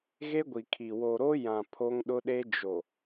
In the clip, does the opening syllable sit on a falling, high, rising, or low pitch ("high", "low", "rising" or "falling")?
high